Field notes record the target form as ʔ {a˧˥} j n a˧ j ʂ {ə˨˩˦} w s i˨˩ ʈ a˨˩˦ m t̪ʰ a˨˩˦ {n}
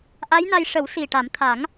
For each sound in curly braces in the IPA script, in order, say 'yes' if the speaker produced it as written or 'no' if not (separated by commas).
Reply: yes, yes, no